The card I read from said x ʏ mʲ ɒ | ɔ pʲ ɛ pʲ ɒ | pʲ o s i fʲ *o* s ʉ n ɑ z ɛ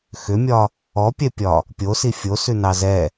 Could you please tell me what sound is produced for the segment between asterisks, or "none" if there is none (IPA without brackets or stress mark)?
o